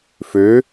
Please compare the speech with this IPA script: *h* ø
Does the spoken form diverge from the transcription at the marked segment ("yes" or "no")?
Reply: yes